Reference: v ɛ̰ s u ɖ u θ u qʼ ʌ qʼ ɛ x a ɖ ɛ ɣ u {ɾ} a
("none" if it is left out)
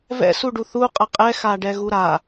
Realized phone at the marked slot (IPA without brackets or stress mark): ɾ